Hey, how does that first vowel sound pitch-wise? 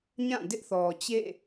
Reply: falling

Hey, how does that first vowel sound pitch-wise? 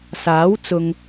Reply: rising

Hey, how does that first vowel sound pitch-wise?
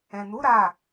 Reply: low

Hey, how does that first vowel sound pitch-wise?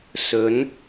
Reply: rising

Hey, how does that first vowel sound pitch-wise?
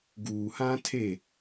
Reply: low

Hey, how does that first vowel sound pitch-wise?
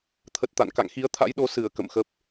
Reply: low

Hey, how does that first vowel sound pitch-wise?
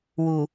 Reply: low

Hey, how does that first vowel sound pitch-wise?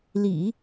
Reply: low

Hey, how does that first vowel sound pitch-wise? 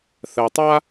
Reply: low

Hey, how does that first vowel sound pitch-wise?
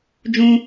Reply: high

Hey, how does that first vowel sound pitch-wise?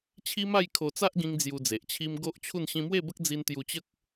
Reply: high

